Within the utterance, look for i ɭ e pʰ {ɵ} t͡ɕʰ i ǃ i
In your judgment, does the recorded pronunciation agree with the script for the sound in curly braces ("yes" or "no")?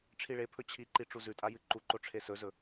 yes